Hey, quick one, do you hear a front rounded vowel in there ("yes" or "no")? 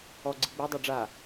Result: yes